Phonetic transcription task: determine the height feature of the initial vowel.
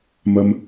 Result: low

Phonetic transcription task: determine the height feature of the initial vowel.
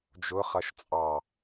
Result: high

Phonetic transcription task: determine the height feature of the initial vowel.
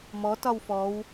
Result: mid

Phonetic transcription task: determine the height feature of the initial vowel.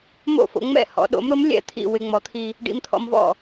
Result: mid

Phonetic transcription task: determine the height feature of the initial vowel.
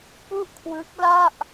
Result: high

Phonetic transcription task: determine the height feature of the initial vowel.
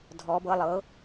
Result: mid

